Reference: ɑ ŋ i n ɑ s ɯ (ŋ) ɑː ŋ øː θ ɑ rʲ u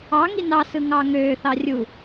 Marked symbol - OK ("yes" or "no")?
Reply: yes